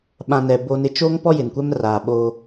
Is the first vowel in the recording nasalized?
yes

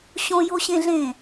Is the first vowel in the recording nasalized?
yes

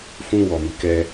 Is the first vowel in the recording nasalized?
yes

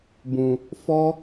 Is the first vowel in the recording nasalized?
yes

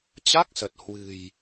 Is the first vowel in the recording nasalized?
no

